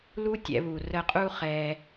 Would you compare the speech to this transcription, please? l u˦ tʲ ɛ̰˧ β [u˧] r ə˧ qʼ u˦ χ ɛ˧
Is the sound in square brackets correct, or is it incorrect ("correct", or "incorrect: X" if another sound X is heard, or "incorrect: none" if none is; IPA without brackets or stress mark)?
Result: incorrect: u˨